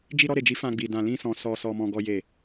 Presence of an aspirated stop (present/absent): absent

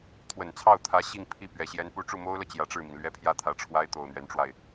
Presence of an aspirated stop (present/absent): present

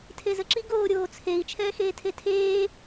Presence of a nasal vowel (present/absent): absent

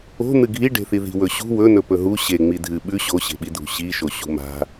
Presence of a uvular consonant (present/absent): absent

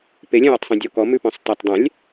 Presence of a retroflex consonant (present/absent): absent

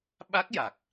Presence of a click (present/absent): absent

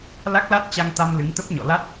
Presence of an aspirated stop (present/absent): absent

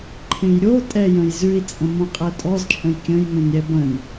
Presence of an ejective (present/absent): present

